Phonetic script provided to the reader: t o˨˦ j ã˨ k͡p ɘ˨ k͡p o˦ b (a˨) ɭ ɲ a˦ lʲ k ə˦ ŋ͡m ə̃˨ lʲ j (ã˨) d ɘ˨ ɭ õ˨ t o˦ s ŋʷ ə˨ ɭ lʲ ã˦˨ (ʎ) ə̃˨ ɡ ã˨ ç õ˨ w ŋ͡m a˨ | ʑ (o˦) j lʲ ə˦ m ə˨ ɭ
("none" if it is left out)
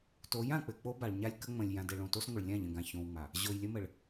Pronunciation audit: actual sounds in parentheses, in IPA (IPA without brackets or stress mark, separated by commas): a˨, ã˨, ʎ, o˨